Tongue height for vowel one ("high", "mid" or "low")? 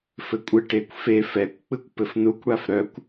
mid